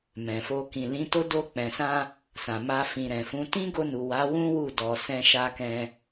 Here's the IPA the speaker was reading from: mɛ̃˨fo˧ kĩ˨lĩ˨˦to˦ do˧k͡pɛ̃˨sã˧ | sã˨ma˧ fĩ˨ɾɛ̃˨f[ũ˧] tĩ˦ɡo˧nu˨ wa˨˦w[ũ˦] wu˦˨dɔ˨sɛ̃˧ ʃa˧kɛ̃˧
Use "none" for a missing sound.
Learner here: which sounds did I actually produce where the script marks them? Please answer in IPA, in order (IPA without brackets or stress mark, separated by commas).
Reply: ũ˨˦, ũ˦